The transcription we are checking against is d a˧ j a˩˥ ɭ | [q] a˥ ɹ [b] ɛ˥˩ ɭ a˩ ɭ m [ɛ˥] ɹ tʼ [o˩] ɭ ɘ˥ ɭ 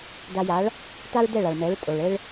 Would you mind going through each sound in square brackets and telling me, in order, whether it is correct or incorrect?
incorrect: t, incorrect: d, incorrect: ɛ˩˥, correct

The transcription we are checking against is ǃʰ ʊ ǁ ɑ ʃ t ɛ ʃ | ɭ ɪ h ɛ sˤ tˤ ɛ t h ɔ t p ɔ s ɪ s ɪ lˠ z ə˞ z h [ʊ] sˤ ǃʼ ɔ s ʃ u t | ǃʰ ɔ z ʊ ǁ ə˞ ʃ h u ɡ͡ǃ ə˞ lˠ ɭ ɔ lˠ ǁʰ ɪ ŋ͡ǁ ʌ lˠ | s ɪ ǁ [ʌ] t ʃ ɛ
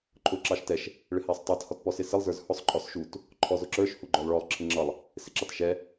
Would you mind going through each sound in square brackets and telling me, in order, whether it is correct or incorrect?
correct, incorrect: ɑ

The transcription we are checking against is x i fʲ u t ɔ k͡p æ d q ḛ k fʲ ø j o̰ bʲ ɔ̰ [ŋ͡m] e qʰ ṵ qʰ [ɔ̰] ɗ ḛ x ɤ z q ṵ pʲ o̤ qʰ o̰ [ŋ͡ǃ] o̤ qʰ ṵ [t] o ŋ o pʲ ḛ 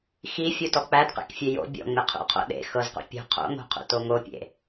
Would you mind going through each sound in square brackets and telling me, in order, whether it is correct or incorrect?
correct, incorrect: o̰, incorrect: ŋ, correct

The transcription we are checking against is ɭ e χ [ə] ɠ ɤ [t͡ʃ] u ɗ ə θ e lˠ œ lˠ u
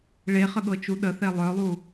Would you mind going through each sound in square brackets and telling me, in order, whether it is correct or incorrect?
correct, correct

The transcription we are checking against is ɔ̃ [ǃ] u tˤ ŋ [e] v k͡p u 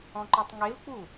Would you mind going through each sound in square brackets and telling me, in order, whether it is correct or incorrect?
correct, correct

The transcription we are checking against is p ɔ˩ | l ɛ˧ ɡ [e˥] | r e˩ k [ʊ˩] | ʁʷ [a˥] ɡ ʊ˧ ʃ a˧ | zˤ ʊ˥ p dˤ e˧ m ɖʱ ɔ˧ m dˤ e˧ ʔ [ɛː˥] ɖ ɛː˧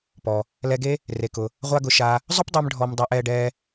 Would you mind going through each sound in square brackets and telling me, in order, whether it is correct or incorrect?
correct, correct, correct, incorrect: ɛː˧

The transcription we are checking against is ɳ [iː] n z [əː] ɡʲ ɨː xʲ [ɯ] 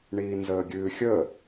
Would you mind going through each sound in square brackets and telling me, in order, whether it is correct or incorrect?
correct, correct, incorrect: ə

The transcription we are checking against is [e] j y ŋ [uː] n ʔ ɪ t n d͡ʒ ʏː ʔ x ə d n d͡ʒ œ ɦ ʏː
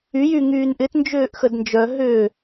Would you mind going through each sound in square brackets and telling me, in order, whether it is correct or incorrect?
incorrect: y, incorrect: yː

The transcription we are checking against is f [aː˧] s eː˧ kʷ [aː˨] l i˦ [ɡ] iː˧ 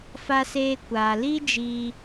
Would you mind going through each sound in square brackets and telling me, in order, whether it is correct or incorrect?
incorrect: a˧, correct, incorrect: d͡ʒ

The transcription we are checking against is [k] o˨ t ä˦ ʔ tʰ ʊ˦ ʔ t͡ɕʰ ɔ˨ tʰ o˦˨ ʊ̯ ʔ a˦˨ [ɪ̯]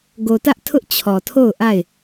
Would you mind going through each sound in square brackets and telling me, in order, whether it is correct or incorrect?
incorrect: ɡ, correct

